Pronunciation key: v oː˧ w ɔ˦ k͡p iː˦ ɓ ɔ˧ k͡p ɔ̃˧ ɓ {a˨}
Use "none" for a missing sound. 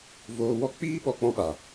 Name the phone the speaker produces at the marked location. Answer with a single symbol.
a˨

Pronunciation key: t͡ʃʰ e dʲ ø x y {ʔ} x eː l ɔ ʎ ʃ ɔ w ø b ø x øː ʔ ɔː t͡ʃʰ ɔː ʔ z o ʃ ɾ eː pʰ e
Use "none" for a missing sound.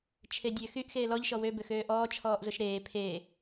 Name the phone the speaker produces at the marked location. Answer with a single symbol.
ʔ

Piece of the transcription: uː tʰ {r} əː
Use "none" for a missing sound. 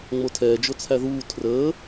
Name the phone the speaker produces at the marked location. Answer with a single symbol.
r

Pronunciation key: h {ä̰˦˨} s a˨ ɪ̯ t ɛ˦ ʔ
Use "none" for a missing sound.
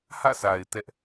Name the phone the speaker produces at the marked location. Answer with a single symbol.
ä̰˦˨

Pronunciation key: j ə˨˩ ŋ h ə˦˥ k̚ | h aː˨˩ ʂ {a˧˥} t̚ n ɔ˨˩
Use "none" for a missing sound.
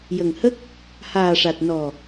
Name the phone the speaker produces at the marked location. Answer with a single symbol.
a˨˩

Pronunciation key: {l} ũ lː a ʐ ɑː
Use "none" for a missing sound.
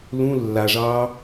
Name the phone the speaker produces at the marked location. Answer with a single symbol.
l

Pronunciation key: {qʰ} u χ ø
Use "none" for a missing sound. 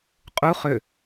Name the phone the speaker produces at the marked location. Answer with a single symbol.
qʼ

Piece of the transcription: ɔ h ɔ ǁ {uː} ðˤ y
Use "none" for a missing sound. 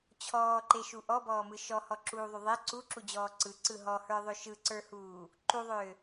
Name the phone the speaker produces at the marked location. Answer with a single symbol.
uː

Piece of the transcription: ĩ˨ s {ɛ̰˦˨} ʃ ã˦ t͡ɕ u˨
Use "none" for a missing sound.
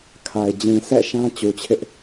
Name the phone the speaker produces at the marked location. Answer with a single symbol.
ɛ̰˦˨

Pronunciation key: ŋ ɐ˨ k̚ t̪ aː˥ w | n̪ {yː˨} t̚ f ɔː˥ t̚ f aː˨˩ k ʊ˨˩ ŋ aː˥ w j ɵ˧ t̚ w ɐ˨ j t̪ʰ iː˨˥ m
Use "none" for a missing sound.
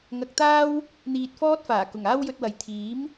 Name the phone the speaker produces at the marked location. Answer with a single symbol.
iː˨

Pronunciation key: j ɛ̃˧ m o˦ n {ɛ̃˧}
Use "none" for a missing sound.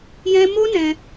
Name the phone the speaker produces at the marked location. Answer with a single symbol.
ɛ̃˧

